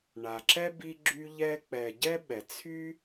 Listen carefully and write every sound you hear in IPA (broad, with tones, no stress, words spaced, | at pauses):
ɳa˩ǁɛ˥bi˦ɡ͡ǁy˦ ʎɛ˦ k͡pɛ˨ ɟɛ˥ɓɛ˩t͡sʰy˥